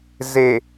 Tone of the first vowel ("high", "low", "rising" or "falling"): low